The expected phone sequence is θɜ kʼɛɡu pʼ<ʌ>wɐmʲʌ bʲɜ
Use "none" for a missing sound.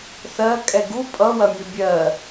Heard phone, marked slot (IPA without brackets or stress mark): ʌ